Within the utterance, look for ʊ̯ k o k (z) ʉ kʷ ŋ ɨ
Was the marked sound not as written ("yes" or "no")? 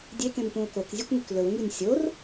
yes